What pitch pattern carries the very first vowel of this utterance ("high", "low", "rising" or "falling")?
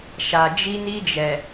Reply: low